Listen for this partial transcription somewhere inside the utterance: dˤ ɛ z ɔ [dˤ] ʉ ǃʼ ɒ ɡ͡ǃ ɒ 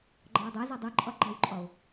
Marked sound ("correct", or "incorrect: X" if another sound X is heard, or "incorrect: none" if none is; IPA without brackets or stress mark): correct